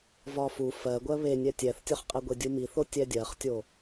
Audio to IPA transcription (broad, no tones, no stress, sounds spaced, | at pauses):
v ɒ f u f ɜ ɡʷ ɜ β e nʲ ɛ tʲ ɛ θ tʲ ɒ χ qʼ ɛ ɡʷ e dʲ u m i θ o tʲ ɛ dʲ ɜ χ tʲ o